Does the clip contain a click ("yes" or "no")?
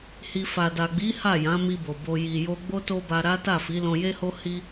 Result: no